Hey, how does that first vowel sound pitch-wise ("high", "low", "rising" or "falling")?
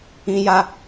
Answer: high